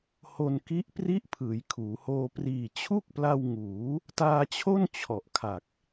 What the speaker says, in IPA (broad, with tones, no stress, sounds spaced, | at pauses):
h o˧ n k i˦˥ ʔ p r i˥˩ ʔ pʰ ɯː˩˦ j kʰ uː˩˦ h oː˧ p r iː˨˩ t͡ɕʰ u˥˩ k̚ p l a˧ w ŋ uː˩˦ | t aː˧ t͡ɕʰ o˥˩ n t͡ɕʰ ɔ˨˩ ʔ kʰ a˨˩ k̚